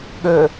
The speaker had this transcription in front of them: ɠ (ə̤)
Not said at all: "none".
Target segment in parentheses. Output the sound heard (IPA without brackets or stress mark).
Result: ə